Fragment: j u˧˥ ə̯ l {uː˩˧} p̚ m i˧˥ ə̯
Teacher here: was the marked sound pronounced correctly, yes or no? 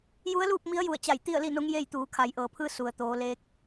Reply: no